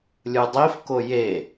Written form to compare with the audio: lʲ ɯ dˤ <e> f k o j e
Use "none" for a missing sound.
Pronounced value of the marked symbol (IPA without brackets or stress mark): i